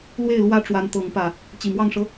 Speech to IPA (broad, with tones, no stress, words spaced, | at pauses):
lwe˥˨ɪ̯lwä˦ʈ͡ʂwa˨˦n t̪ɤ˨˦ŋpä˨˩ | t͡ɕi˨˩mwɑ˥˨ŋʂɤ˦